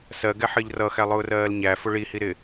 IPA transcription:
s ɜ ɡ ɛ ħ ɜ ʎ r ʌ x æ lˠ ʊː r ɜː l ɲ æ f ʊ ɭ i h i ɾ ɪ

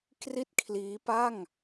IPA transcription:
k r i˥˩ t̚ kʰ l iː˦˥ p a˥˩ ŋ

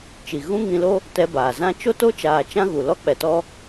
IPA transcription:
t͡ʃ i˨ ɣ ũ˦ ŋ ĩ˧ l o˦ | t ɛ˧ b aː˨ z ã˦ t͡ʃ o˦ t o˦ t͡ʃ aː˨ t͡ʃ ã˦ ɣ u˨ l ɔ˦ k͡p ɛ˨ t ɔ˧

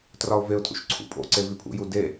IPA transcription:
t r ɒ ʊ̯ v e ʊ̯ tʰ ṵ ʃ ǀʰ ṵ pʼ o̰ ǀ e v i pʰ ṵ j u d e

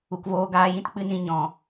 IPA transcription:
u˨ k v oː˧ ɡ aː˧ j ĩ˦ t k͡p ɨ˦ n ĩ˦ ɲ ɔ̃˧

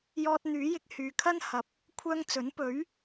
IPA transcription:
j ɔː˧ t̚ n̪ yː˨˥ j ɪ˧ k̚ h yː˨ kʰ ɐ˥ n h ɐ˨ p̚ | kʷʰ œː˧ ŋ t͡s ɵ˨˥ n p ɵ˨˥ ɥ

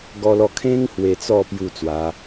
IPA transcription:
ɡ ɔ˧ l ɔ˧ kʰ ẽ˦ ŋ h w e˧ t͡s ɔ˥˧ p j u˥˧ t͡s w a˨˦

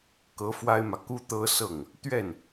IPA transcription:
k ɤ˧˥ f w a˥ ɪ̯ m ä˨ k u˥ t̪ ɤ˥ s ɤ˥˩ ŋ | t̪ ɥ ɛ˥˩ n

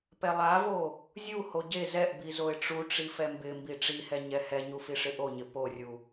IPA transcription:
p ɛ lˠ a v o | zʲ u h o ɟ e z ɛ ʔ b i z o ɪ̯ ʈ͡ʂ u ʈ͡ʂ i f ɛ m b ɪ m b i ʈ͡ʂ i h ɛ ɲ ɛ h ɛ ɲ u f i ʂ ɪ ʔ o ɲ ɪ p o rʲ u

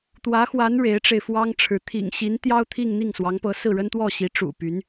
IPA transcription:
t̪ w ä˧˥ x w a˧˥ n ɻ e˧˥ ɪ̯ ʈ͡ʂ e˧ ɪ̯ f w ɑ˥ ŋ ʈ͡ʂʰ ɻ̩˧˥ t̪ʰ ḭ˨˩ ŋ ɕ i˧˥ n t̪ j ɑ˥ ʊ̯ t̪ʰ i˥˧ ŋ n̪ i˥˩ ŋ s w ɑ˧˥ ŋ p ɤ˧˥ s ɹ̩˥˩ ɻ ə˥ n t̪ w ɔ˥˩ ɕ i˧˥ ʈ͡ʂ ṵ˨˩ p y˧˥ n

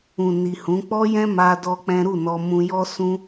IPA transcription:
ũ˨ n i˨ h ũ˨˦ k͡p ɔ˦ j ɛ̃˦ m a˦ d ɔ˦ k͡p ɛ̃˦ ɾ u˦˨ n ɔ˧ m ũ˧ j ɔ˦ s ũ˦

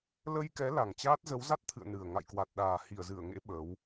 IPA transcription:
l ə˧ j k ɛ˨˦ l a˨˩ ŋ t͡ɕ aː˦˥ t̚ z ə˨˦ w z a˦˥ t̚ t̪ʰ ɨ̰˧˨ ə̯ n ɨ˨˩ ə̯ ŋ a̰˧˨ j k w a˨˩ t̚ ɗ aː˨˩ h i˧˩ ə̯ z ɨ˧˩ ə̯ ŋ ḛ˧˥ ɓ ə˨˦ w

